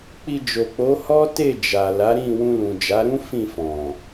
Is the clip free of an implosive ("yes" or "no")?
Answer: yes